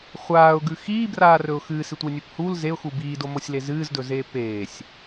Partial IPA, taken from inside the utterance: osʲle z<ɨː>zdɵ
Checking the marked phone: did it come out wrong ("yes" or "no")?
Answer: no